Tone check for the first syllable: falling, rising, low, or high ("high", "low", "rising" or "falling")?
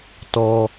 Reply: high